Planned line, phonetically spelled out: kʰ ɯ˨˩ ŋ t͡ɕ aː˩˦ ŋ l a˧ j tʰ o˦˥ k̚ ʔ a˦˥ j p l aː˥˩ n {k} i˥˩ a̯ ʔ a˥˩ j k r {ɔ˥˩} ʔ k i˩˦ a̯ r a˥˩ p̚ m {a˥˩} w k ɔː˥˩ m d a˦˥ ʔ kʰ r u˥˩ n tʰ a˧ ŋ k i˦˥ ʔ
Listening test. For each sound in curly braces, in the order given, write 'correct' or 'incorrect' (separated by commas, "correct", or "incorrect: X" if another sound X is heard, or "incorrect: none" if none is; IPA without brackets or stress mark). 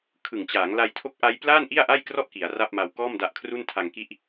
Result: incorrect: ʔ, correct, incorrect: a˧